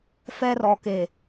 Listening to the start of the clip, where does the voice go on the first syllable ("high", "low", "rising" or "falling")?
high